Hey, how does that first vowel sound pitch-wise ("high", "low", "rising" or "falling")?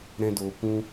high